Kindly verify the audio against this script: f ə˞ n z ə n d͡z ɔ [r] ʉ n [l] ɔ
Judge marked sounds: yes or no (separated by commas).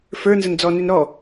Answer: no, no